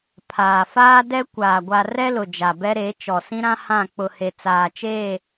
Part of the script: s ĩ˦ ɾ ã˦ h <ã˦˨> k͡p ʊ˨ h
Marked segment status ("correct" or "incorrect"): correct